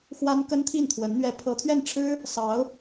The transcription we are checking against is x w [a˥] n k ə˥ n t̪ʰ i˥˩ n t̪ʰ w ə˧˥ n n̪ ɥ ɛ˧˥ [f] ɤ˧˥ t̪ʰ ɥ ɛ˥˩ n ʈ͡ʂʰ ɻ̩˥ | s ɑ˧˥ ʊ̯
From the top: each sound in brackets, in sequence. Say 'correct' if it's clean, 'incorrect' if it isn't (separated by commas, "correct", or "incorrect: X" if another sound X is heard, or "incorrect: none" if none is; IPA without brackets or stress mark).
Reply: correct, incorrect: pʰ